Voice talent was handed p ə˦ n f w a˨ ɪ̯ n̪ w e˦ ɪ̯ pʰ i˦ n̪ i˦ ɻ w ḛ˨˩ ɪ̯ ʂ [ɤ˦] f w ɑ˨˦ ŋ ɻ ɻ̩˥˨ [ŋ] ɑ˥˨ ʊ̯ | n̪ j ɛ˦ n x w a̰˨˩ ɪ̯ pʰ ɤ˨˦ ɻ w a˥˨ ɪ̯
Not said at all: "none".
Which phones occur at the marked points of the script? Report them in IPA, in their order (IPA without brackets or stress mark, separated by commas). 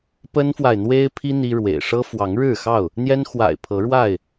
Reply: ɤ˦, x